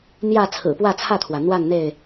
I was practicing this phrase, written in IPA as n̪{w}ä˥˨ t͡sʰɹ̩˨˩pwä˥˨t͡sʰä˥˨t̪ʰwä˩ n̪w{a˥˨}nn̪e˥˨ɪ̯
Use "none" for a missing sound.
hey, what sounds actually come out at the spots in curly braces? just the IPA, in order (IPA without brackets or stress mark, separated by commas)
j, a˥˨